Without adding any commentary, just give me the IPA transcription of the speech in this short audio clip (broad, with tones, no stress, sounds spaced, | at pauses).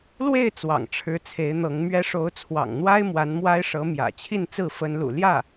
l w e˥˩ ɪ̯ t͡s w ɑ̰˨˩ ŋ ʈ͡ʂʰ ɻ̩˧˥ t͡sʰ e˧˥ ɪ̯ n̪ ɤ˧˥ ŋ m ɥ ɛ˥ ʂ o˧˥ ʊ̯ t͡sʰ w ɑ̰˨˩ ŋ n̪ w a˥ ɪ̯ m w a˧˥ n m w a˥ ɪ̯ ʂ ɤ˧˥ m j ä̰˨˩ t͡ɕʰ i˥˧ n t͡s ɹ̩˥˩ f ə˥ n l ṵ˨˩ l j ä˥˩